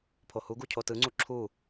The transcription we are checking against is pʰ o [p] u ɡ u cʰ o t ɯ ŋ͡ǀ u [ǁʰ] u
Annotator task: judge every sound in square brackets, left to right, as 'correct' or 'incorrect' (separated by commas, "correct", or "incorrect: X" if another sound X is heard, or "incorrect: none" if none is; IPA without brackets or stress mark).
incorrect: h, correct